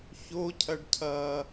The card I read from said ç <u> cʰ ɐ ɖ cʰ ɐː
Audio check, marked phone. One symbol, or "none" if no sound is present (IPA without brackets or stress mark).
o